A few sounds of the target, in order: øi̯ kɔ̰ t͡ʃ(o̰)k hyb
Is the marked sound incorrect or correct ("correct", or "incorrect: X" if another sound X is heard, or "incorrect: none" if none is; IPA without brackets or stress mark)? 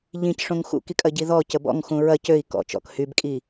incorrect: ɔ̰